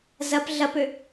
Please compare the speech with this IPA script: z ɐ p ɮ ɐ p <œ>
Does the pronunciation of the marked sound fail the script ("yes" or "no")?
yes